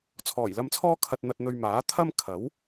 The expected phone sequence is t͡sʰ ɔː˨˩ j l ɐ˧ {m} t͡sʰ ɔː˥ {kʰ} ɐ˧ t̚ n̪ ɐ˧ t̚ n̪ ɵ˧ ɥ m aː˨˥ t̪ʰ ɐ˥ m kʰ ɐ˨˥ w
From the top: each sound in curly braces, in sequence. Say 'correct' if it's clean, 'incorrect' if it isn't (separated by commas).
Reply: correct, correct